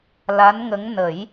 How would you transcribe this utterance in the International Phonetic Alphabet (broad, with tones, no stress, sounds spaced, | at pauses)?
l a˧˥ n ŋ ə˧˥ ŋ n ə˨˩˦ j